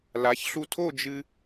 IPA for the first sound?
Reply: l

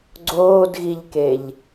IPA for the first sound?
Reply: ɡ͡ǀ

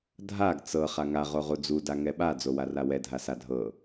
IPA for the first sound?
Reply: dʱ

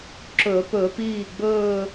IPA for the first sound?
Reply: ǁ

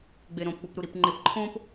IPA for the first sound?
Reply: ɡ͡b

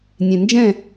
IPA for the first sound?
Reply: nʲ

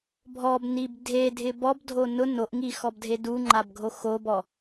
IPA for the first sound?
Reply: bʱ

